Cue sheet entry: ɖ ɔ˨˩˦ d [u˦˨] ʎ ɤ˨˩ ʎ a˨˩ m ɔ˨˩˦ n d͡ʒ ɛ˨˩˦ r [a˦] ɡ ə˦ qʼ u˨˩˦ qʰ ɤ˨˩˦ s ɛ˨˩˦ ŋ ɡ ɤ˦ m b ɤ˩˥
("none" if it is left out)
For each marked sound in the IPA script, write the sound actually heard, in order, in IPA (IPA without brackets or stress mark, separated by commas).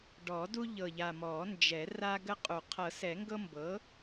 u˦, a˦